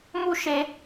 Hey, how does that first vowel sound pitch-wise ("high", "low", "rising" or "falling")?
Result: high